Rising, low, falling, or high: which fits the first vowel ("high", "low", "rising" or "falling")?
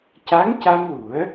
rising